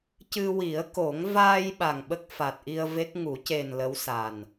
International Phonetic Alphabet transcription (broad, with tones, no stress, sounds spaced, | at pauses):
c ɨ˧ w i˨˩˦ ə̯ k o˨˩˦ ŋ v aː˧ j ɓ a˨˩ ŋ ɓ ə˦˥ k̚ f a˨˩ t̚ ʔ i˧ ə̯ v e˦˥ k̚ ŋ u˨˩˦ c e˨˩ n l ə˧˥ w s a˨˩ n